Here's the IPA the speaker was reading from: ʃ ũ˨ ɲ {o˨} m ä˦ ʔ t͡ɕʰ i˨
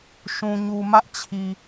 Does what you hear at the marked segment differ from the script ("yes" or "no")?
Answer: yes